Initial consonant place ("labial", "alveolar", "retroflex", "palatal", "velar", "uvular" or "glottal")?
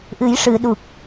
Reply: glottal